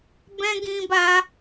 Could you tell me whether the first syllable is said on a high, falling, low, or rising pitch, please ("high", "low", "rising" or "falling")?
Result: high